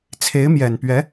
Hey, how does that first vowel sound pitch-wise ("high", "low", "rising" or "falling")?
rising